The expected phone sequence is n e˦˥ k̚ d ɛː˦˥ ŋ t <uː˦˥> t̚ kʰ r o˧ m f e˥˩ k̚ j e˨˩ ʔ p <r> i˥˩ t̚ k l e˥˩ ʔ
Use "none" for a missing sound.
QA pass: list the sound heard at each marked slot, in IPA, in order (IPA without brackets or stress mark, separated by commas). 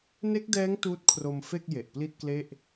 uː˦˥, l